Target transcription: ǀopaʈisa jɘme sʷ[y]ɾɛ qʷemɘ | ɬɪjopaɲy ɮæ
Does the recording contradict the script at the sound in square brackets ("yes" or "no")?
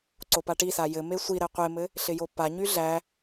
yes